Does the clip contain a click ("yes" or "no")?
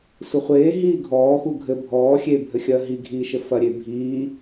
no